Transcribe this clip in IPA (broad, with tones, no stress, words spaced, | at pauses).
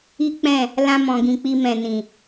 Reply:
i˦k͡pɛ̃˦˨ | lã˧mɔ̃˨ɡĩ˨k͡pi˧ mɛ̃˨nĩ˨